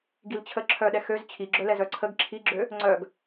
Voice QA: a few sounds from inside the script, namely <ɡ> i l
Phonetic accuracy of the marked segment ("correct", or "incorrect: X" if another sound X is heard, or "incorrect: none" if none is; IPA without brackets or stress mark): correct